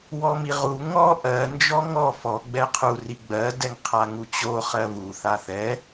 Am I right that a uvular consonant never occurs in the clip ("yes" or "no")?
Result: no